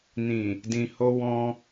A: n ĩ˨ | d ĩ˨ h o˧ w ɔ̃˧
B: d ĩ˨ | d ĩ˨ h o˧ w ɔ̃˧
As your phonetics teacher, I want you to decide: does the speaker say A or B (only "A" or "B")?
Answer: A